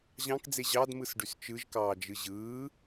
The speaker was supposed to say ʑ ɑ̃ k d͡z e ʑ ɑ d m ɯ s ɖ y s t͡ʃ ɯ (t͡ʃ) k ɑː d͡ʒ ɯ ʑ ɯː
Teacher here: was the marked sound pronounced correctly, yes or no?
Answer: no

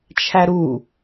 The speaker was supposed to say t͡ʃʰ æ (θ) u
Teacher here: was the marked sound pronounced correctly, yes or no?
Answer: no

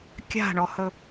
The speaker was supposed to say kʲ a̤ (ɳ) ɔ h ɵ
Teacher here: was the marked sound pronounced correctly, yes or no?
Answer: yes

